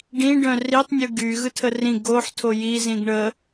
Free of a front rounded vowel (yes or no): no